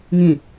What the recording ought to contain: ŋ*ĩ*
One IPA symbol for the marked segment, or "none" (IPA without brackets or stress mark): ĩ